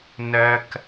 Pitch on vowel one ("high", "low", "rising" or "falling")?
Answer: high